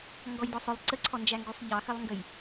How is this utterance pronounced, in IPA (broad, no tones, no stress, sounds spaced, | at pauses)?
ŋ ɡ ɔ j d ɔ sˤ ʊ lˠ ǀ ə ǀʰ ɔ n d͡ʒ æ ŋ ɡ u sˤ ʎ ɑ x ə lˠ ŋ ɡ ə j